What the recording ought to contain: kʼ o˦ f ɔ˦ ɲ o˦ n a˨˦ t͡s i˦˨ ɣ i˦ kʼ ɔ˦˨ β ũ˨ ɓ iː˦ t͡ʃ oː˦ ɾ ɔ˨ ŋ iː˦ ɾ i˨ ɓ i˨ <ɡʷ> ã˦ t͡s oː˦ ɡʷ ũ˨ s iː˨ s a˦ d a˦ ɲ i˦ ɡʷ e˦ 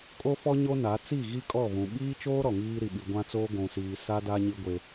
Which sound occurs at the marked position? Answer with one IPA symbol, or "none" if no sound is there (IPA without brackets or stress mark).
ɡʷ